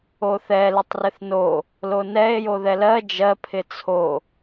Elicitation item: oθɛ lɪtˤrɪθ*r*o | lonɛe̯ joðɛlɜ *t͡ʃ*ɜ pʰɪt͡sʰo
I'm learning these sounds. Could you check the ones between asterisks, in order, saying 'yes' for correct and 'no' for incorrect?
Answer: no, no

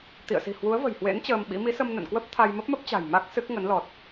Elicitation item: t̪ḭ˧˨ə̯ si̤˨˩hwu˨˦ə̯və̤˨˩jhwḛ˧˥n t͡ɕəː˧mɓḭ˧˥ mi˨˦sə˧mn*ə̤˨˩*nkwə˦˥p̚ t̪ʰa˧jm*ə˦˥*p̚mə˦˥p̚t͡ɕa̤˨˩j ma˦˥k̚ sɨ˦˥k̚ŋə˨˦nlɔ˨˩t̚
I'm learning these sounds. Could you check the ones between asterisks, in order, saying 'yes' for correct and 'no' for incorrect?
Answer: no, yes

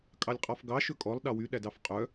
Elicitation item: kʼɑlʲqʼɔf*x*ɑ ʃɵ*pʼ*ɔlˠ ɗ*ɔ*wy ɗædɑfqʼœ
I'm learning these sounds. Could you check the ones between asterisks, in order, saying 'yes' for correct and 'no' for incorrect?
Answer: no, no, no

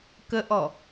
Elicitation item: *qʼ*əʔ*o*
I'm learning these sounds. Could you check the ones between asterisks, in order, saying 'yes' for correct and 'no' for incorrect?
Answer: no, no

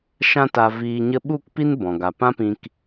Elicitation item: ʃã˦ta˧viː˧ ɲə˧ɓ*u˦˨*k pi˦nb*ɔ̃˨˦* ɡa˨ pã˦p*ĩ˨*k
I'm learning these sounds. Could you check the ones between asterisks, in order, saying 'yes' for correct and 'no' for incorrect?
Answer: yes, no, no

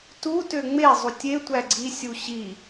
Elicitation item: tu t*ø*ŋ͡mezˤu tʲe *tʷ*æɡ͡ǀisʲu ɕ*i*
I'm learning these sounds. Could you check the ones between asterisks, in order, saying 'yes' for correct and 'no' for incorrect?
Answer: yes, yes, yes

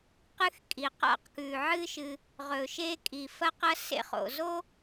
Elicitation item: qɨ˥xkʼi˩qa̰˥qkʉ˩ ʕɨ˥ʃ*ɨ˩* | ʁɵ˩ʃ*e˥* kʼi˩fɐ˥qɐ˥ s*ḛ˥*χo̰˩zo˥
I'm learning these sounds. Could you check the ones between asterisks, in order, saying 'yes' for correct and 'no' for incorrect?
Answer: yes, yes, yes

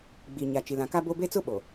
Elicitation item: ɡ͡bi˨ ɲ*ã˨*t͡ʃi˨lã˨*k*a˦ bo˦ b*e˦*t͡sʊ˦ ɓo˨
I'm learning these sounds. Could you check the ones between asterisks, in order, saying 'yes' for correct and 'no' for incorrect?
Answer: no, yes, yes

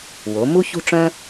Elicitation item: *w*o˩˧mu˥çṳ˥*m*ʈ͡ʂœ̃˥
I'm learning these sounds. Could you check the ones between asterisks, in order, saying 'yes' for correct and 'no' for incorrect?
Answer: yes, no

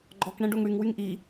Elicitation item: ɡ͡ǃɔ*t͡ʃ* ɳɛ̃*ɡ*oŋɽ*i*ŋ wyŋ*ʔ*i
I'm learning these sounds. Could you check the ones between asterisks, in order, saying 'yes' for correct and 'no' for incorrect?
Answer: no, no, no, yes

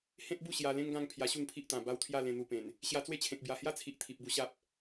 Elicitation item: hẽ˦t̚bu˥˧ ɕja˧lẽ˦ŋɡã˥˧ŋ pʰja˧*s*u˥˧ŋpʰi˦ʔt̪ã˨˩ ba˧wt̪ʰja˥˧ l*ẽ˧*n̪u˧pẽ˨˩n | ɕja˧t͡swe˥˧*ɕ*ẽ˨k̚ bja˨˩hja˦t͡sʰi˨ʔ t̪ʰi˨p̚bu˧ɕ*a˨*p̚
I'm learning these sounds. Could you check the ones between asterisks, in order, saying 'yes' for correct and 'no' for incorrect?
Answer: no, yes, no, no

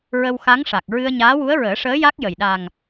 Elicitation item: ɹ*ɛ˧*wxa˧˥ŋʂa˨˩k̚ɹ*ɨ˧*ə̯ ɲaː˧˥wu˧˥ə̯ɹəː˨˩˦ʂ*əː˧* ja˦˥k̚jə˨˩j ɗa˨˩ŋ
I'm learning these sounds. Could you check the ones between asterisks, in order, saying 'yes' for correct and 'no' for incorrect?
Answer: no, yes, no

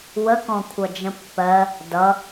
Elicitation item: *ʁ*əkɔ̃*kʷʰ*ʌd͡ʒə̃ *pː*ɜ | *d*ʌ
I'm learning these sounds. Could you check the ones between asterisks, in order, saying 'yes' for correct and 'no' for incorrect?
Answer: no, yes, yes, yes

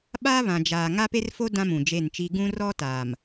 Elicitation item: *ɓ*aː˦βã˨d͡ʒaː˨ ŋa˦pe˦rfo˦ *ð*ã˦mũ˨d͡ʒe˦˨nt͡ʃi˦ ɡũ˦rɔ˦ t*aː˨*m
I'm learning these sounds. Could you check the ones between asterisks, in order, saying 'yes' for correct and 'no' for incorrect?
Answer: yes, no, yes

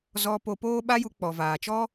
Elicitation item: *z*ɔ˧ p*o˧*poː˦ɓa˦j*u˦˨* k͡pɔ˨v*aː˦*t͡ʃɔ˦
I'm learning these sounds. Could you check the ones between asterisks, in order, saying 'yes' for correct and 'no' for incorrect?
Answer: yes, yes, no, no

